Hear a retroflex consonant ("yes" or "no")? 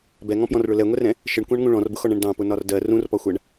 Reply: yes